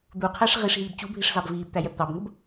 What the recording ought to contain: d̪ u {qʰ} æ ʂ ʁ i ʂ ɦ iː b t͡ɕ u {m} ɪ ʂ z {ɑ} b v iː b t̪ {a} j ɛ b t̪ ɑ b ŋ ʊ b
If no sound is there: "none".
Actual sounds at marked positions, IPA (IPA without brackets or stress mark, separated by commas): qʰ, bʱ, ɑ, æ